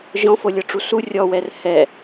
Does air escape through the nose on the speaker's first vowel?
yes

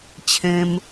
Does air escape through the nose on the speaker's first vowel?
yes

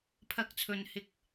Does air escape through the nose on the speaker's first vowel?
no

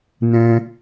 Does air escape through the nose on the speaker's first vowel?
yes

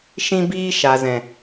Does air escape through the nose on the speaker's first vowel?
yes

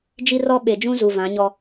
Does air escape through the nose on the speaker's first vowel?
no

